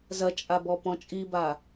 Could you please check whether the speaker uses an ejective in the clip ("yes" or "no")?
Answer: yes